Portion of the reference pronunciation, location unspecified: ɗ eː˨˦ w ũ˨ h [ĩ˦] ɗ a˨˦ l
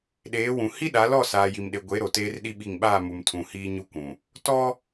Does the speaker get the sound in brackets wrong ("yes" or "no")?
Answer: yes